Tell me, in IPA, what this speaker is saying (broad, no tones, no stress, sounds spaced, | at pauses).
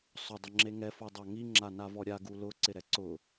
sˤ ʊ dˤ ʊ ŋ͡ǁ e ŋ ɛ f o dˤ a ŋ i ŋ͡ǁ a n a v ɔ ɾʲ a ɡ u l ʊ ǀ ɪ ɾ ɛ ǀ ʊ